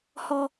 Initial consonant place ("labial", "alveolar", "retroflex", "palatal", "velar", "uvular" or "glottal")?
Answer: glottal